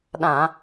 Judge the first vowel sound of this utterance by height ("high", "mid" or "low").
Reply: low